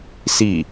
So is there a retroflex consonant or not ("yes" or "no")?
no